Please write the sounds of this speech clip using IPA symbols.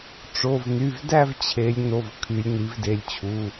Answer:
ʈ͡ʂ o˩˧˩ v n y˩˧˩ v d æ˥˧ v t͡ɕʰ e˩˧ lʲ n o˩˧˩ v kʰ y˩˧ lʲ n i˩˧ v d e˩˧ lʲ t͡ɕʰ u˩˧˩

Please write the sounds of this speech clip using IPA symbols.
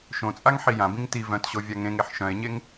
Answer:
ʃ õ t͡sʼ a ŋ ħ i j ã b ĩ ŋ t i v œ̃ t ɕ o vʲ a ŋ ẽ ŋ e ħ ʃ œ̃ e̯ ɲ e ŋ

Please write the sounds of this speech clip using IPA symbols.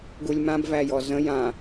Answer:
ɡ u lʲ m ã b v æ j ɔ z ə̃ j ã

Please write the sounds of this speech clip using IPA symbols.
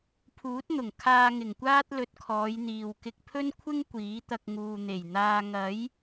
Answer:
pʰ uː˨˥ t̚ n̪ ʊ˨˩ ŋ kʰ aː˧ ŋ ɪ˨˩ ŋ kʷ aː˥ t̚ l ɵ˧ t̚ kʰ ɔː˨˧ j n̪ iː˨ w k ɪ˧ k̚ pʰ ɵ˥ n kʷʰ ɪ˥ ŋ kʷ iː˨˥ t̪ ɐ˧ k̚ ŋ uː˨ n̪ e˨˩ j n̪ aː˧ ŋ ɐ˨˥ j

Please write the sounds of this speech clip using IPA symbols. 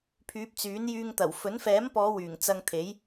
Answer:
pʰ yː˨˥ p̚ t͡s yː˨˥ n j yː˧ ŋ t̪ ɐ˨˩ w f ɵ˨˥ n f ɛː˨˥ m p ɔː˨˧ w yː˨˩ ŋ t͡s ɐ˧ ŋ t̪ʰ e˨˥ j

